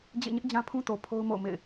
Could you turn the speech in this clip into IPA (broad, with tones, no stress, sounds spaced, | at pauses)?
d͡ʑ ḛ˦˨ ɲ ɪ˦ ʔ d͡ʑ ã˦ pʰ ũ˦ t o˨ pʰ o˦ ʊ̯ m o̰˦˨ ʊ̯ m ḛ˦˨ ɪ̯